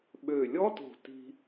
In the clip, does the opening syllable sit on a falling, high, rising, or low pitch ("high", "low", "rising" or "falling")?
low